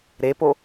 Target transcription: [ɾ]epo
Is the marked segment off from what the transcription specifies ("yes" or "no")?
no